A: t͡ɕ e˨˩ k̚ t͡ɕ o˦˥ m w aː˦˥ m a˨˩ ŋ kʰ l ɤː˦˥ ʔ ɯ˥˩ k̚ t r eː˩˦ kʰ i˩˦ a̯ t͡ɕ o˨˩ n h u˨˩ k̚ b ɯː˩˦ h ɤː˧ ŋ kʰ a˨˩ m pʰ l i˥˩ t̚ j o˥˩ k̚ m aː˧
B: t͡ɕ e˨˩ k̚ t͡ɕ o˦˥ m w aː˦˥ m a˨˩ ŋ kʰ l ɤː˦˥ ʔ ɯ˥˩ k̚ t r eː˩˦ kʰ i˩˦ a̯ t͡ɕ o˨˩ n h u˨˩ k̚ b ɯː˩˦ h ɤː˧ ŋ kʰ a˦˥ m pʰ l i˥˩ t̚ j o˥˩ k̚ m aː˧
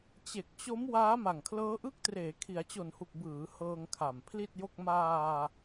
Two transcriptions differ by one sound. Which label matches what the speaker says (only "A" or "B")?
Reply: A